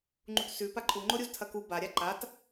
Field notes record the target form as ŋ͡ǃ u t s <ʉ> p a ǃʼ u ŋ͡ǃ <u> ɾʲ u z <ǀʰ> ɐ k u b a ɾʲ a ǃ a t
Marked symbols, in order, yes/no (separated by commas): yes, no, no